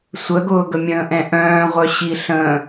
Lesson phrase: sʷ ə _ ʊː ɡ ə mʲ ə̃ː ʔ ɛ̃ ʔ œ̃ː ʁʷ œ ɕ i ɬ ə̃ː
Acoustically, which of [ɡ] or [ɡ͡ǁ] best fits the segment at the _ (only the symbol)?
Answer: ɡ